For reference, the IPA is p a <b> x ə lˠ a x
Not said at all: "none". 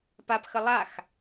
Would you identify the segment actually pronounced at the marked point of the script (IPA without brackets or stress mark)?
p